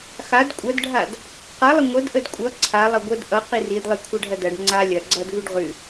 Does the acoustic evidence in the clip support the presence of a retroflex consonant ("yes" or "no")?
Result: yes